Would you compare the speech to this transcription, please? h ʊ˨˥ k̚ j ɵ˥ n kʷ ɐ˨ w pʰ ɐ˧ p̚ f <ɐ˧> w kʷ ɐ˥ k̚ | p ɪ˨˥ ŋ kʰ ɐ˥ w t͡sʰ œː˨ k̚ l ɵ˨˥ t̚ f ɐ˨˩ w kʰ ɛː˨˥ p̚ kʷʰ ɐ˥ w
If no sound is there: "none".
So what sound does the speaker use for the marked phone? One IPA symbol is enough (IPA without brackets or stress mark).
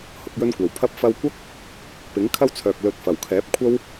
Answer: ɐ˧